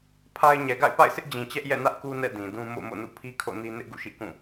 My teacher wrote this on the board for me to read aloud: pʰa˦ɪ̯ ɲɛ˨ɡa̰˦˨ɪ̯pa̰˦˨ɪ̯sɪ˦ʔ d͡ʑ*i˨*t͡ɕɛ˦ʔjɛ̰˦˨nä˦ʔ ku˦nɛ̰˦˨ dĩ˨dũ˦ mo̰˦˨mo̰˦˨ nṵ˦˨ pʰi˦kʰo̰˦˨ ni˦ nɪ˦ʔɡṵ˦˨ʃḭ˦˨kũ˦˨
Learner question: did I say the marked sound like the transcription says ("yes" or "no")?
no